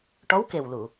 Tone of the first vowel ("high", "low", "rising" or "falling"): rising